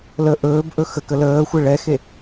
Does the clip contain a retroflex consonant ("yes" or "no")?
yes